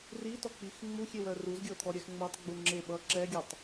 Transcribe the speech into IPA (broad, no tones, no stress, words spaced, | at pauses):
ritɔk͡pix ŋ͡muxʲewœ ruzɡʲɤt̪ʰɔɾʲɛx ŋ͡mɤtˤɡ͡bu ŋ͡ǁe ɓʌ ǁɛɡʲatˤ